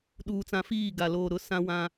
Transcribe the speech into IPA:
ɗ uː˨ t͡s ã˨ f iː˦˨ ɡ a˨ l oː˨ ɾ ʊ˨˦ s ã˦ w ã˦

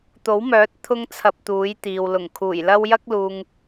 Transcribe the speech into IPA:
t̪ o˨˥ w m œː˨˥ t̚ t̪ʰ ʊ˥ ŋ t͡sʰ ɐ˧ p̚ t̪ uː˨˥ j t̪ iː˨ w l ʊ˨˩ ŋ kʰ uː˨˩ j l ɐ˥ w j ɐ˥ k̚ l uː˨ ŋ

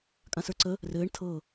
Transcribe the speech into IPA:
kʼ ã s ə˞ ǀ ə | r ɘː ɳ tʰ ɤ

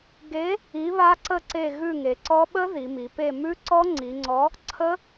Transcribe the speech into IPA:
ɡ e˨˥ | i˨˥ β a˦˥ ǀ ə˦˨ ǀ e˦˨ ɣ ʉ˦˨ ŋ e˩˧ ǀ ɔ˦˥ ɓ ə˦˥ ð i˩˧ m i˩˧ p e˦˨ m ʉ˦˥ ǀ ɔ˦˥ ŋ͡ǀ i˩˧ ŋ͡ǀ ɔ˨˥ | ǀʰ ə˦˥

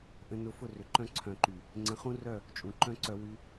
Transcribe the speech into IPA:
ʔ ə̃˧ n ʊ˧ f ʊ˦˨ r ʏ˨ ǃ œ̃˦ ǀʰ œ̃˨ ǃ y˨ | ŋ͡ǀ ə̃˨˦ χ ũ˦ r œ˦˨ | t͡ʃʼ ũ˨ ǃ œ̃˦ ǀ œ˧ w y˧

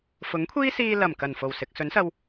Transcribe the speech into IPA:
f ʊ˨˥ ŋ kʷʰ iː˥ s iː˧ l ɐ˨˩ m k ɐ˨˩ n f o˨˩ w s ɪ˨ k̚ s ɵ˨˥ n s ɐ˧ w

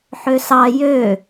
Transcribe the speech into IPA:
ħ ø s ɑ j ø

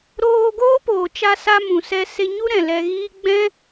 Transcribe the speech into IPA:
ɾ oː˧ ɡ oː˦ p oː˨ t͡ʃ a˧ s a˧ m ũ˨ s ɛ˧ s e˧ ɲ u˦ ɾ ɛ̃˨ l ɛ˧ ɣ iː˦ ɡ͡b ɛ̃˦

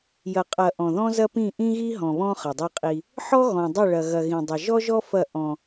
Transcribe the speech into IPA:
j ɐ˨ qʼ ɐ˨ ʔ ɔ̃˨ ð ɔ̃˦ z ɐ˦ p ĩ˦˨ ʔ ĩ˦ ɣ i˦ ɦ ɔ̃˨ β ɔ̃˦ χ ɐ˨ dˤ ɛ˦ qʼ i˦ | ħ ɔ˦ ɣ ɔ̃˨ dˤ ɐ˦˨ ɭ ɐ˨ ɣ ɐ˨ ɣ ĩ˨ dˤ ɐ˨ ʒ ɔ˦ ʒ ɔ˦ f ɐ˦˨ ʔ ɔ̃˦

